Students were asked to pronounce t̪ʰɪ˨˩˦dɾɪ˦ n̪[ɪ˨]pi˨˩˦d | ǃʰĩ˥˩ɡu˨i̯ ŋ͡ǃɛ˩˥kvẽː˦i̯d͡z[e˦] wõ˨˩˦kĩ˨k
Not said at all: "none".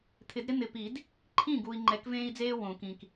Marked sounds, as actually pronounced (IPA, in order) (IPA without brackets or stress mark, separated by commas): ɪ˨, eː˦